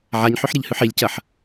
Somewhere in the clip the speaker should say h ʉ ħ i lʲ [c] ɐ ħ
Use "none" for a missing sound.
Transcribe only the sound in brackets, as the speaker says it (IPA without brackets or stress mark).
c